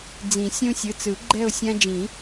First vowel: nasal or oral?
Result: nasal